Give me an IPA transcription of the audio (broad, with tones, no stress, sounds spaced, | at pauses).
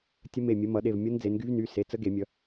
tʲ ə˦˥ m e˧˩ mʲ ə˨˦ m ʌ˨˩˦ ɗ e˩˧˩ v mʲ ʌ˦˥ n d͡z e˨˦ n ɡ y˦˥ v n y˩˧˩ s e˩˧˩ t͡s ə˦˥ ɡ e˨˩˦ mʲ ʌ˨˦